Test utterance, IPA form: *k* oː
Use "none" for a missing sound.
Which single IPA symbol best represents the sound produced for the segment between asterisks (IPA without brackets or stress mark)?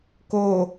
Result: k